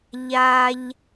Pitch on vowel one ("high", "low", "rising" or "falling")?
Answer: high